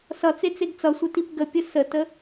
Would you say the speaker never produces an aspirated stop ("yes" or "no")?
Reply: yes